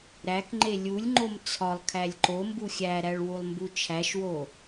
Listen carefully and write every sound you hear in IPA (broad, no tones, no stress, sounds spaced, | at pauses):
ɾ æ k ŋ͡ǃ e lʲ u lʲ ŋ͡ǃ o m t͡sʰ ɒ lˠ kʰ æ lʲ ǃ o m b u xʲ æ ɾ æ ɭ w u lˠ m b u t͡ʃʰ æ ʃ w o